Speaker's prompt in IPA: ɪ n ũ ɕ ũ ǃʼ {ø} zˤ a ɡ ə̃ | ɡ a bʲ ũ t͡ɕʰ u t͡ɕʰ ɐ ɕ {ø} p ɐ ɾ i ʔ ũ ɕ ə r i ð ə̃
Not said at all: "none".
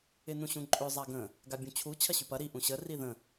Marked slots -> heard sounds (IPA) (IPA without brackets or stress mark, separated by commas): ø, y